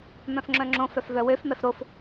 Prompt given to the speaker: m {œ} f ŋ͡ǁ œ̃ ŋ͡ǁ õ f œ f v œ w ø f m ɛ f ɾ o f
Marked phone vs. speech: incorrect: œ̃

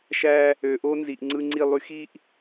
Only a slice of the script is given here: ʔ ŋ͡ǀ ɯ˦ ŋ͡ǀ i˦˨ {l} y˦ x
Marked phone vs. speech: incorrect: lˠ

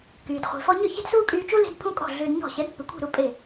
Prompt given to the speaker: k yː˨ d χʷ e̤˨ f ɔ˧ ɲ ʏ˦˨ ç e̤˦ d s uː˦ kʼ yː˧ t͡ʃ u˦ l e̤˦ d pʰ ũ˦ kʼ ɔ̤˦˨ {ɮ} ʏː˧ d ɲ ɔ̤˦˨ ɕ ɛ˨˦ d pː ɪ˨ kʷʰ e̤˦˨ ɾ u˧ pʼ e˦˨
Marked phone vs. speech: correct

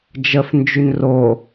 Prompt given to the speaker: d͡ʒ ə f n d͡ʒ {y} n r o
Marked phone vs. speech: correct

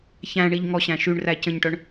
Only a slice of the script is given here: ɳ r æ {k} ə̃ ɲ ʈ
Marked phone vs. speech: incorrect: c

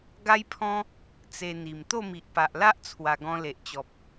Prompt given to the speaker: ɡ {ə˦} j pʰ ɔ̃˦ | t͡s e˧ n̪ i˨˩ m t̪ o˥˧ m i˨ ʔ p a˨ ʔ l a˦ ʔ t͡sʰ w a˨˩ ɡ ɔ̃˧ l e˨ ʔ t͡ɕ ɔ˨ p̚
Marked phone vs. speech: incorrect: a˦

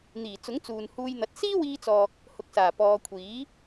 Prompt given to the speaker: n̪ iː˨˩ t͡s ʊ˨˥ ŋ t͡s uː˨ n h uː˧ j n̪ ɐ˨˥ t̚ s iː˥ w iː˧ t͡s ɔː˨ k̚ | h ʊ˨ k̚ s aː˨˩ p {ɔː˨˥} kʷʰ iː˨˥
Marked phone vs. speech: incorrect: ɔː˨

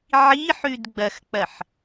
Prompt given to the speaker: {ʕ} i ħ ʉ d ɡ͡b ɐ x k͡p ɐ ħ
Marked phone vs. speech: correct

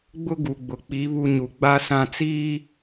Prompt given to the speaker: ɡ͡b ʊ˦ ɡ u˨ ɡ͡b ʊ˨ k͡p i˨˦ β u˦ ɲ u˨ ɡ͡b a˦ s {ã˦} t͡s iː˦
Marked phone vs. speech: incorrect: ã˦˨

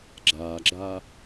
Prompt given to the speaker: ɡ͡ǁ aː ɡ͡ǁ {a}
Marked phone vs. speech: correct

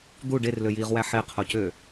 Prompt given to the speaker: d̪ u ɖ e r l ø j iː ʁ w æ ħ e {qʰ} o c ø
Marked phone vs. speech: correct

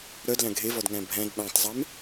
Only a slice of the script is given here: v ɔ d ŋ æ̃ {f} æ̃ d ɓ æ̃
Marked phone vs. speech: incorrect: bʱ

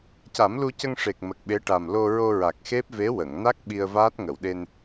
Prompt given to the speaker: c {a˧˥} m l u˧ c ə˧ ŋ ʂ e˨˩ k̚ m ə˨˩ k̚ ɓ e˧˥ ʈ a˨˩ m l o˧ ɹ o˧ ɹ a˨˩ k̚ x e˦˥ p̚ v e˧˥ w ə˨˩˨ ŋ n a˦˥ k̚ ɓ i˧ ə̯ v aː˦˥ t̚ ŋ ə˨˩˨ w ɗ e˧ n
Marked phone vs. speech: incorrect: a˨˩˦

